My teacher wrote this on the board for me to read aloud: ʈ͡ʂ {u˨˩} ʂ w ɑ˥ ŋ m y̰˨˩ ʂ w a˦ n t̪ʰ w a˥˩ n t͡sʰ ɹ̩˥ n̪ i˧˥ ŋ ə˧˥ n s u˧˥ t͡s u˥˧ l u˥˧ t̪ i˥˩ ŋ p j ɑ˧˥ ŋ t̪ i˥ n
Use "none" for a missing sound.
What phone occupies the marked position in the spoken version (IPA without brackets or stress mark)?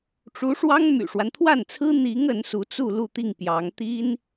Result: u˧˥